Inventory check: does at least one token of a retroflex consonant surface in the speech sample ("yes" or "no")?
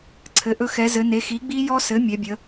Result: no